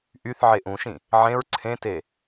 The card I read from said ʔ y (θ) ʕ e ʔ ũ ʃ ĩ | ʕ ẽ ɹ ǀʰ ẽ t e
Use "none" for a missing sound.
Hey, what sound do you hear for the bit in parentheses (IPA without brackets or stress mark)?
θ